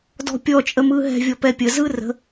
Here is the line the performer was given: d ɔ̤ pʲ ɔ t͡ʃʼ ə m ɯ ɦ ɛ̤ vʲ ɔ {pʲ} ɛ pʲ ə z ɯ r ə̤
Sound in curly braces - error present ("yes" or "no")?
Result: yes